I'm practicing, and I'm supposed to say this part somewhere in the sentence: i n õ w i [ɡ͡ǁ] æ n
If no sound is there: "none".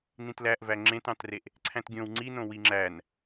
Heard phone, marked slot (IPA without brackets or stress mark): ŋ͡ǁ